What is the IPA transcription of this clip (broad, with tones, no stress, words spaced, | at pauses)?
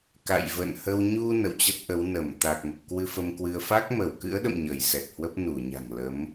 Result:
ka̰˧˨jvə̰˧˨nhə˧w ɲu˧ nə̰˧˨wt͡ɕə˦˥t̚ʔə˨˦w nə˧˩m t̪a˨˩k̚mə˨˩p̚kwɨ˧ fə˧mkwɨ˧ə̯ fa˦˥k̚mə˧˩wkɨ̰˧˥ə̯ɗə̰˧˨m ɲəː˧˩jsɛ˨˩t̚hwə˦˥p̚ nu˧˩ɲa̤˨˩ŋ lə˨˦m